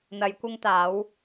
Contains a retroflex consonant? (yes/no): no